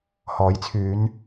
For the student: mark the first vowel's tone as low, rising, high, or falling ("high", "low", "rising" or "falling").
rising